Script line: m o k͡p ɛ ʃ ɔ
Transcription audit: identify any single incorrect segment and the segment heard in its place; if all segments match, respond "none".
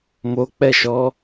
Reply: none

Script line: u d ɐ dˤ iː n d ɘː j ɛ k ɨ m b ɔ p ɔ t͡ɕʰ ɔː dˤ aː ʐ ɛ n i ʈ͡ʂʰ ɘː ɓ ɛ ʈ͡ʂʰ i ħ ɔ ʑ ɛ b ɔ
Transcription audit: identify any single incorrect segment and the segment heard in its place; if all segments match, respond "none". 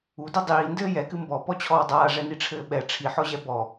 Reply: none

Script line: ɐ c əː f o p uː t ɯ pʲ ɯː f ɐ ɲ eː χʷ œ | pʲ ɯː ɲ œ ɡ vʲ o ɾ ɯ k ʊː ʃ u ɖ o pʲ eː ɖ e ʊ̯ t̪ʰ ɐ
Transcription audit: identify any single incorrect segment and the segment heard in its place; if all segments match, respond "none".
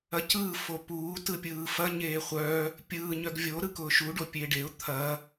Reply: əː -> ɯː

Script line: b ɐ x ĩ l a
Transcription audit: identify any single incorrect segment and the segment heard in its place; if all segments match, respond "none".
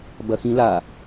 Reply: none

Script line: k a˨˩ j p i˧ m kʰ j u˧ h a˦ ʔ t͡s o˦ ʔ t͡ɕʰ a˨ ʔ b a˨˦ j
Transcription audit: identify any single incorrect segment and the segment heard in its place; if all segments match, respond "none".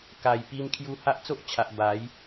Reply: none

